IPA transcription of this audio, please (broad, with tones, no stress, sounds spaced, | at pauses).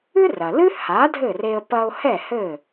ɨ˥ r ɐ˩ l ɨ˥ h a˩˥ dʱ ɘ˥˩ r e˧ ə̯ p ɐ˧ ʊ̯ h ɛ˥˩ h ɘ˥˩